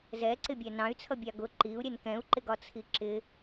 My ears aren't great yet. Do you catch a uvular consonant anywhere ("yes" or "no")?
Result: no